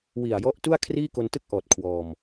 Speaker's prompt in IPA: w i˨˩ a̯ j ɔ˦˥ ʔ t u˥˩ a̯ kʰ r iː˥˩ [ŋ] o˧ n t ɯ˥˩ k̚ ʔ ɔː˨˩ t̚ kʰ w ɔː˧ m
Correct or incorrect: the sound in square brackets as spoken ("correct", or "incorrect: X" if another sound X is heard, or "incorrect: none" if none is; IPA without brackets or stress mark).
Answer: incorrect: k